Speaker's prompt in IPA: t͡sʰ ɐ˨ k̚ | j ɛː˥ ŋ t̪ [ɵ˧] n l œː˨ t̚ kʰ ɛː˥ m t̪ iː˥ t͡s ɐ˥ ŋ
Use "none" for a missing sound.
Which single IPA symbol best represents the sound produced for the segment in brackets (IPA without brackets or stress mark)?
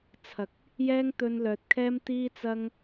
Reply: ɵ˧